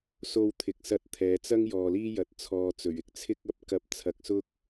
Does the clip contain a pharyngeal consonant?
no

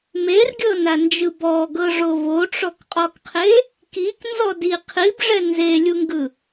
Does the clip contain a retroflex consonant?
yes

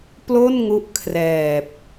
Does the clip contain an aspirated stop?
yes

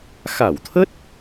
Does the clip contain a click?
no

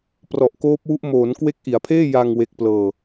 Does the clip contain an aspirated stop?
yes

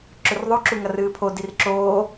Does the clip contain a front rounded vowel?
no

